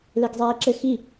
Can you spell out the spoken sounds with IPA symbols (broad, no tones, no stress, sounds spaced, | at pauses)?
l e ɡ zˤ eː ǁ ɘ x i